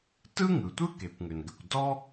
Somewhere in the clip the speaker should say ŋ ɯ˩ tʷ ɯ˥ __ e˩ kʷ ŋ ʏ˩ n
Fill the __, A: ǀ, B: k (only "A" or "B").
B